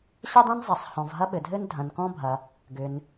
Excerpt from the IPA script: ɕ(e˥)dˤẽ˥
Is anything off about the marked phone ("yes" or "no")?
yes